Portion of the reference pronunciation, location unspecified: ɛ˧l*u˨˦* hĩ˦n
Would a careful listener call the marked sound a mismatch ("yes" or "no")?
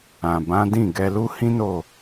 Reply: yes